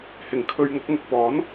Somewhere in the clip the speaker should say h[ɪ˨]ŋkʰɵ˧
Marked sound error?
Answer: no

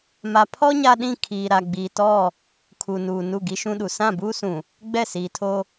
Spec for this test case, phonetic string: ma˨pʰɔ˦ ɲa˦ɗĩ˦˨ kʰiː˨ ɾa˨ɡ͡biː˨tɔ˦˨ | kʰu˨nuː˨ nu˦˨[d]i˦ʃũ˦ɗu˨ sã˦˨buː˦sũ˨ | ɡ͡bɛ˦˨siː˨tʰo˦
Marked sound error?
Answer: yes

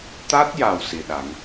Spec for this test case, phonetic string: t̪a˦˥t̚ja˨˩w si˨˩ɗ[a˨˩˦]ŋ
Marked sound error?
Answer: no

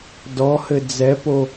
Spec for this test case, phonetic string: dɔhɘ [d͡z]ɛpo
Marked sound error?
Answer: no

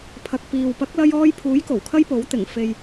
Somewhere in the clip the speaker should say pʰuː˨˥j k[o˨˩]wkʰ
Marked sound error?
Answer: no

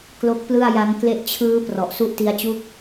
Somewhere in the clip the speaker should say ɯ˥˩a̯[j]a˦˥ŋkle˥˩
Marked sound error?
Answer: no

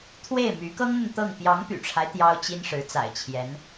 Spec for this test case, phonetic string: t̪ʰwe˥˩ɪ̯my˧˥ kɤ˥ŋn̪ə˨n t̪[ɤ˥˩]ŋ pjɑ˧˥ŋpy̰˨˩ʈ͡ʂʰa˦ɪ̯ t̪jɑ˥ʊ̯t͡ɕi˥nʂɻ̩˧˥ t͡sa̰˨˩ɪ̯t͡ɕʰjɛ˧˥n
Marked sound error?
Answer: no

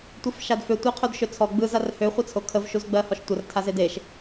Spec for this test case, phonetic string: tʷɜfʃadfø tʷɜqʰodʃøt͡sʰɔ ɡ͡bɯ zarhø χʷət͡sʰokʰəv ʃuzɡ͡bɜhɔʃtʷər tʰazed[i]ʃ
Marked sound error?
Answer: yes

